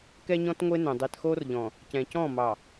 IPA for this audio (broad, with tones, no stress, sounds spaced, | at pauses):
k ɛ˦ ɲ ɔ̃˦ t ŋʷ e˦ n œ̃˨ dˤ e˨ t x o˦ r ʎ ɔ̃˨ | c ɛ̃˨ c ɔ̃˦˨ m ɑ˨